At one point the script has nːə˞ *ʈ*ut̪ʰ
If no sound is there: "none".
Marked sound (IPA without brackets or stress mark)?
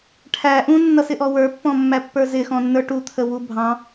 ʈ